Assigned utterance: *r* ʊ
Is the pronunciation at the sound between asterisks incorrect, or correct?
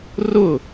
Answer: correct